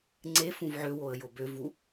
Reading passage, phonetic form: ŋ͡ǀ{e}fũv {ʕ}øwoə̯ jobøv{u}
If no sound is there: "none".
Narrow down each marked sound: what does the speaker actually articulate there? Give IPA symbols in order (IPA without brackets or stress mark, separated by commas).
e, ʕ, u